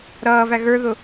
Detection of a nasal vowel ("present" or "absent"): absent